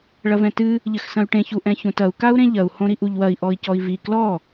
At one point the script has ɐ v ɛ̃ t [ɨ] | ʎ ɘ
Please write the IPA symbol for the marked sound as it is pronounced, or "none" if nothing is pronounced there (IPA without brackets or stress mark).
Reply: ɨ